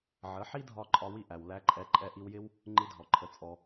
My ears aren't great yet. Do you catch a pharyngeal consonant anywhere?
yes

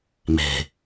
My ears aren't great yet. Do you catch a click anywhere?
no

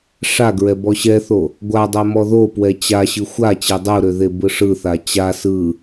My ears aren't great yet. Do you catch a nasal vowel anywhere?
no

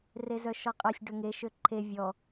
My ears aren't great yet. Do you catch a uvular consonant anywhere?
yes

